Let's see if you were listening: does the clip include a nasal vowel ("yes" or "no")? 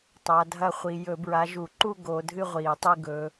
no